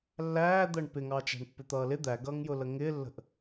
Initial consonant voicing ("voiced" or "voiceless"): voiced